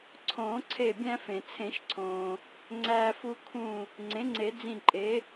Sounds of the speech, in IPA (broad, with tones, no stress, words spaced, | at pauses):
ǀʰõː˨˩˦ǀʰe˧˩ bʲæ̃˧fẽ˩ t͡sʰẽ˨˩˦ʃǀʰõː˩ | ŋ͡ǀæː˧fu˧kʰũ˧˩ | ŋ͡ǀẽ˩˥ŋ͡ǀe˨˩˦ d͡zĩ˧˩ǃʼe˩˥